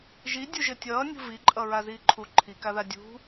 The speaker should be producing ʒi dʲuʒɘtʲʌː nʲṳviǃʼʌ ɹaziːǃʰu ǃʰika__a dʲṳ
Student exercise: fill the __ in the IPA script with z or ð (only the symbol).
ð